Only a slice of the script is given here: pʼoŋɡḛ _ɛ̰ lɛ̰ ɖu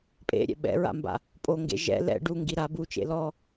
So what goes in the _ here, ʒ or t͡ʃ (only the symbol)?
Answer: ʒ